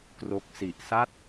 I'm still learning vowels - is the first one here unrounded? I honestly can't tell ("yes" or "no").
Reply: no